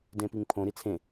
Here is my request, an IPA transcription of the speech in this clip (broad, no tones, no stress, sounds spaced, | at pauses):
d ẽ p i ŋ pʰ õ ɾ i t͡sʰ ẽ